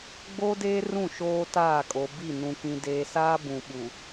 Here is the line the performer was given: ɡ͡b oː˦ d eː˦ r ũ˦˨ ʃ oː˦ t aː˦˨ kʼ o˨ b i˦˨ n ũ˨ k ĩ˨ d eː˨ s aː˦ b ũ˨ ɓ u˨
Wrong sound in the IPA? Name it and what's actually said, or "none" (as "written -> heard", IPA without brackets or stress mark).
none